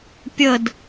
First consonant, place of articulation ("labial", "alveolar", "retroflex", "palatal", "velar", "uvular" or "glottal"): labial